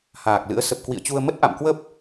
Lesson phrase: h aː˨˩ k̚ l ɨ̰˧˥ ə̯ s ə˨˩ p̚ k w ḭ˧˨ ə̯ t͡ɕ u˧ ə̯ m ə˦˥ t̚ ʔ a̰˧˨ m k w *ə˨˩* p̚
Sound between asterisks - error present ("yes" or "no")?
yes